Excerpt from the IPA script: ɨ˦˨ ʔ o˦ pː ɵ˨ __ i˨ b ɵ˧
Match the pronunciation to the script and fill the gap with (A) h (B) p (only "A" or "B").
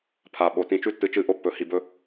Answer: A